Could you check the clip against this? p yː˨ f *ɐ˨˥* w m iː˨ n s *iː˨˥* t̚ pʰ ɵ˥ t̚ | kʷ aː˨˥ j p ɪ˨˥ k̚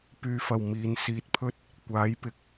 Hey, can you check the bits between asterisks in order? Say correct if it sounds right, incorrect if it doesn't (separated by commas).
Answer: incorrect, incorrect